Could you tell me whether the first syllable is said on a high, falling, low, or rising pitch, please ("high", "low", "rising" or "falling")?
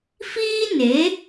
high